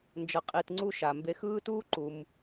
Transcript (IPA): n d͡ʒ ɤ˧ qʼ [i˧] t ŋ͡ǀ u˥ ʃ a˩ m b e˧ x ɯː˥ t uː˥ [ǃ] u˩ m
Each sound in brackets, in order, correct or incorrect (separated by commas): correct, correct